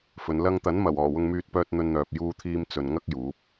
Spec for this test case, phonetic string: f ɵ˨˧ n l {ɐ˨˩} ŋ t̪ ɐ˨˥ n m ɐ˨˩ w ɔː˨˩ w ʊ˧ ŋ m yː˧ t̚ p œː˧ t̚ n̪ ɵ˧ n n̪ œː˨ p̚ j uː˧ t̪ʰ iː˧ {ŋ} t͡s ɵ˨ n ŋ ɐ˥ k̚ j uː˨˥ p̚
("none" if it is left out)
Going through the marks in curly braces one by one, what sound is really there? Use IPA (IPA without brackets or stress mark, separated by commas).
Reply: ɐ˥, m